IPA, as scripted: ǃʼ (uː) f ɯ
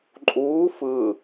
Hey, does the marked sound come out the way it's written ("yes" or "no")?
yes